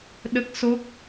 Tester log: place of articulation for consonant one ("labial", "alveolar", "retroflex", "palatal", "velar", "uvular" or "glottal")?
alveolar